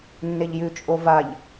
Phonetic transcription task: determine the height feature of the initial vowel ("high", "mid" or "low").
mid